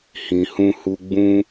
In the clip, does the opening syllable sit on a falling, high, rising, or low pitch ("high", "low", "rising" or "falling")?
low